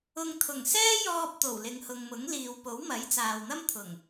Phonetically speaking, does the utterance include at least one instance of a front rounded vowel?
no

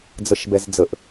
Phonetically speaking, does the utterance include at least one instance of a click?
no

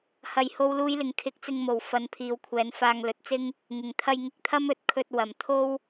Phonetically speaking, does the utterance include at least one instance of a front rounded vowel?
no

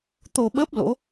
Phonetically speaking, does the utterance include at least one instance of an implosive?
yes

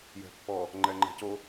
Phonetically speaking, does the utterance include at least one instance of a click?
yes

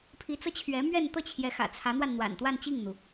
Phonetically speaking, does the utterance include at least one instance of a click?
no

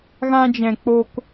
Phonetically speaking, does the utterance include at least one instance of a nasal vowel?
yes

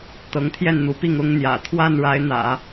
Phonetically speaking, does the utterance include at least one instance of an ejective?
no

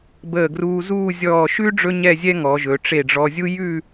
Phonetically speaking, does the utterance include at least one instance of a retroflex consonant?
yes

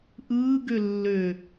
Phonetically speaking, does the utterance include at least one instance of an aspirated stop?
no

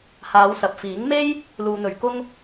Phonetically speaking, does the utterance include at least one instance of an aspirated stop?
no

